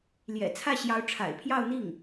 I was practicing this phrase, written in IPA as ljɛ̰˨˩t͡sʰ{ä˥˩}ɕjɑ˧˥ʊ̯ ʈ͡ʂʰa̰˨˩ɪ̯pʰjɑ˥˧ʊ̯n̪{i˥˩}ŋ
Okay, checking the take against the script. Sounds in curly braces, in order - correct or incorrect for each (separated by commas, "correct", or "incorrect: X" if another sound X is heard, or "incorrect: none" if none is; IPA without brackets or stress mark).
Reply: correct, correct